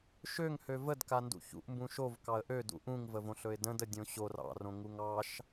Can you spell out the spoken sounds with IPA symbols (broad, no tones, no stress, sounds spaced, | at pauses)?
ʃ ø ŋ h ø v ə d k a n d ṵ ç ṵ ʔ m b ũ ʃ o v k ɑ ə̯ ʔ ø d ṵ ʔ ũ ŋ v ə v õ ɬ ɵ ɪ̯ d ə̃ d ə dʲ õ ɕ o r ɑ̰ r õ ŋ u ŋ ɑ ʃ